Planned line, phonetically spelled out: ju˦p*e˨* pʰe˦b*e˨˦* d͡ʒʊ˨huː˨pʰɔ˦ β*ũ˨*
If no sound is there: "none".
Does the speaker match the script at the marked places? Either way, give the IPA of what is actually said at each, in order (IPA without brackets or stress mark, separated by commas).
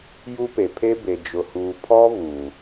e˨, e˨, u˨